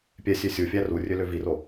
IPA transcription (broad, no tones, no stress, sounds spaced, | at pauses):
pʲ ɛ sʲ ø sʲ u fʲ æ r u rʲ ø l ø v i r o